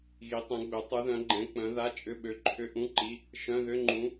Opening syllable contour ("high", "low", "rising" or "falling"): rising